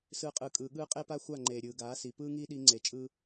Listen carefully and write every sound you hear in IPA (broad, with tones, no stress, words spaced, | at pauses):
sɯː˧qʼɯː˨ kʼɯː˨ɠɯː˦ qʼe˦pa˦xʷa˦˨ ŋ͡ǃeː˨ ɾʲɯː˨ ɡaː˨˦si˨ pɯː˦ŋiː˦ɗi˧ ŋ͡ǀe˨t͡ʃʼɯː˦